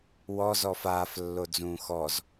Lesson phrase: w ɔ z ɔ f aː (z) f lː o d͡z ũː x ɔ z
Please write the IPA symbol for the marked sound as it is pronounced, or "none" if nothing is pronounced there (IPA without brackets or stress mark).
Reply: none